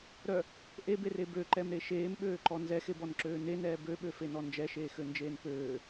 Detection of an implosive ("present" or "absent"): present